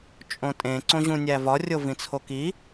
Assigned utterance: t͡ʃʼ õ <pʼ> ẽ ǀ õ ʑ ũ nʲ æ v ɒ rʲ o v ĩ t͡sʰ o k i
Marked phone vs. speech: incorrect: tʼ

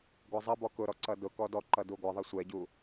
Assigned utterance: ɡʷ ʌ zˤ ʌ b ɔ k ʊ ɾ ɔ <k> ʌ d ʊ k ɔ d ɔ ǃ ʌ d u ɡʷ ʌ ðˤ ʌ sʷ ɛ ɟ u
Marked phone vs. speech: incorrect: ǀ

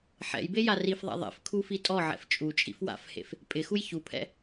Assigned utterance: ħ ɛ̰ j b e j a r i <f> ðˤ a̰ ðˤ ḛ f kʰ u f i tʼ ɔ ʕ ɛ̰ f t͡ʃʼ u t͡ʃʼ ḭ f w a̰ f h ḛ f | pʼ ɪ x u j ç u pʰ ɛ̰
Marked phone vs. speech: correct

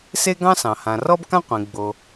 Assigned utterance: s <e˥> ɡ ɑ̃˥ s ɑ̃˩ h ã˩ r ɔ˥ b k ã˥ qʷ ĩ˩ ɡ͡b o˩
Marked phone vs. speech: correct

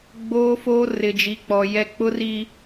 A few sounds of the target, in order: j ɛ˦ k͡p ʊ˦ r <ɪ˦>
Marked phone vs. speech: incorrect: i˦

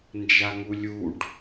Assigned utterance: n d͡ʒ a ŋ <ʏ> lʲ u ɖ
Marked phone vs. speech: incorrect: u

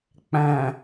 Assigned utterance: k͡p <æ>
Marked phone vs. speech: incorrect: æ̃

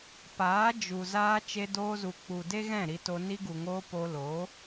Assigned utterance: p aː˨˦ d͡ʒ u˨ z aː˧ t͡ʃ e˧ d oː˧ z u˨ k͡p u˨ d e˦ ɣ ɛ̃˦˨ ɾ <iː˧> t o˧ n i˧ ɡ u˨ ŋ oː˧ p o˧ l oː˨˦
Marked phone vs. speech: incorrect: i˧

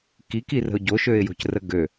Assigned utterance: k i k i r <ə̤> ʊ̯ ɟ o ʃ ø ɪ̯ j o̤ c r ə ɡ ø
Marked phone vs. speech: correct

